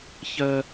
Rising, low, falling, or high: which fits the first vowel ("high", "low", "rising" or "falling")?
high